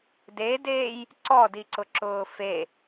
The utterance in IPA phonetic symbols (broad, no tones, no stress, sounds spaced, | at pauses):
d e d eː j | ǀ ɔ d i ǀ ʊ ǁ ʊː f e